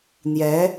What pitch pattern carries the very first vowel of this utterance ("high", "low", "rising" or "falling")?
rising